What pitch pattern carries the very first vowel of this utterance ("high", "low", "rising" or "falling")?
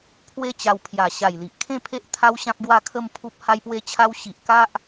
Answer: falling